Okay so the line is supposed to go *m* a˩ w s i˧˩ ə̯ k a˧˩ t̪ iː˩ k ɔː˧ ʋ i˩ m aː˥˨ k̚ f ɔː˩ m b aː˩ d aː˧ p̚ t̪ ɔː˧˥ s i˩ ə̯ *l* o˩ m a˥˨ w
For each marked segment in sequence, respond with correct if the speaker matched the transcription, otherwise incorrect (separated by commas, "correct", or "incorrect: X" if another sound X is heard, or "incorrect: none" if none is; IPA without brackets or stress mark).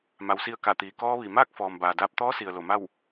correct, correct